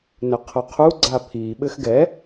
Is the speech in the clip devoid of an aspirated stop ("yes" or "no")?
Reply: no